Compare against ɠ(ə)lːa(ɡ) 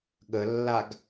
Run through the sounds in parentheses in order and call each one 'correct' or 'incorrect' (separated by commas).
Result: correct, correct